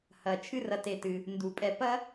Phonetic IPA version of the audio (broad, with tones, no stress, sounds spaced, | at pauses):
h ɐ˩ t͡ʃʰ ɨ˥ r ɐ˨ t e˨ t ɨ˩ | n d u˩ pʼ ɛ˨ p ɐ˥